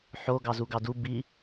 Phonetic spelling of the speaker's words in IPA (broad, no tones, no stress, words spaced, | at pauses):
ħo ɡɑzuɡɑdu bi